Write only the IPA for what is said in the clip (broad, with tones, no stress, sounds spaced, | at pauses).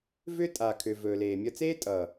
v ʏ˦ tʼ a˨ kʰ ʏ˨ v ɵː˨ l eː˨ mʲ ʌ˧ t͡s eː˦ tʼ ʌː˨